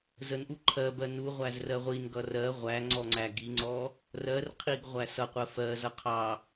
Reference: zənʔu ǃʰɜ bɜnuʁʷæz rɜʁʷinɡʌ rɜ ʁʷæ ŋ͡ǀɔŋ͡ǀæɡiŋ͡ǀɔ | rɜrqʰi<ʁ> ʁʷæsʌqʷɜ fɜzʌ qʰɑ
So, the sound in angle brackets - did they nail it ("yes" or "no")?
no